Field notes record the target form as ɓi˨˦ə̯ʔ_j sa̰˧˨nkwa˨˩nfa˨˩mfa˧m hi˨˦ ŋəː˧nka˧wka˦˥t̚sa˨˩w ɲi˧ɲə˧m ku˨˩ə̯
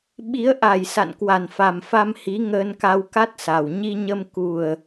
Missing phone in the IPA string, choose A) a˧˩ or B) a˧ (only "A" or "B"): A